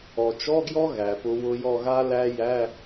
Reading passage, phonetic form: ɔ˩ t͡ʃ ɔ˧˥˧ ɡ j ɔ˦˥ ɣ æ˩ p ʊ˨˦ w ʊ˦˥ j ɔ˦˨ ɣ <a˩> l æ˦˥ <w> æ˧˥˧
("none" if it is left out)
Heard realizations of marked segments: a˦˥, j

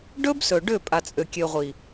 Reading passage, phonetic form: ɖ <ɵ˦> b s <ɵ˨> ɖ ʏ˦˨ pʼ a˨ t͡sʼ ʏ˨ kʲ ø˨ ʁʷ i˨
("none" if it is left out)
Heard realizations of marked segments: ɵ˦, ɵ˨

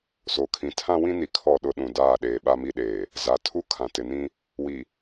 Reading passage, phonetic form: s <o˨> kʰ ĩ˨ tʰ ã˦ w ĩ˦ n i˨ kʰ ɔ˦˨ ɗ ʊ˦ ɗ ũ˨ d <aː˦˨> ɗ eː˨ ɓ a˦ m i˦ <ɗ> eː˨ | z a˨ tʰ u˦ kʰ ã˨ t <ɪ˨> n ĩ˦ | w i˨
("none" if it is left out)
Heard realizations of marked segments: o˨, aː˦˨, ɗ, ɪ˨

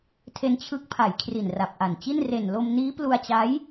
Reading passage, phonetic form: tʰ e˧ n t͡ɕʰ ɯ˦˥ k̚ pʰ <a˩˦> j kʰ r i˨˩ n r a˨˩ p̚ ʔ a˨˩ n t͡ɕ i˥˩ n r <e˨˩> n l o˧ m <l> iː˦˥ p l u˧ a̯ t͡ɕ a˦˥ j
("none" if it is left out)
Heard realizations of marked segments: a˩˦, e˨˩, n

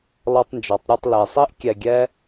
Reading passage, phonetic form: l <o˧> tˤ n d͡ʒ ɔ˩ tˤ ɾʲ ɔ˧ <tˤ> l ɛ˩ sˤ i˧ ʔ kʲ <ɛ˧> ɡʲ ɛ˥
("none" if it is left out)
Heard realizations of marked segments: ɔ˧, tˤ, ɛ˧

